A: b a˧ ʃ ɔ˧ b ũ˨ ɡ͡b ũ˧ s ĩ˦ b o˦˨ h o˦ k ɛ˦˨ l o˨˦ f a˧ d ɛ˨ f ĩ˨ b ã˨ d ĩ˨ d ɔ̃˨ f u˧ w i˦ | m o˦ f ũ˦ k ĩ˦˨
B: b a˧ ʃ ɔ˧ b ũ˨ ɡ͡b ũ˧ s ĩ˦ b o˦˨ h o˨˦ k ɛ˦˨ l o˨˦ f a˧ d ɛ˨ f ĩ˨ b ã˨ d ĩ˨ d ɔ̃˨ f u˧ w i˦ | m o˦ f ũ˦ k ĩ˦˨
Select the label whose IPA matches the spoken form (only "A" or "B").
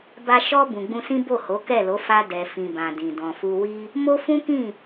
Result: B